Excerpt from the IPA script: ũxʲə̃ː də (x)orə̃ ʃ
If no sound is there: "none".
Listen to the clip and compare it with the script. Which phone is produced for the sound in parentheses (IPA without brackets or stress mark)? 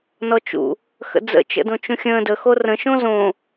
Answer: x